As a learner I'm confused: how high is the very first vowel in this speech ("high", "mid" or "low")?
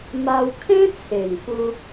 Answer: low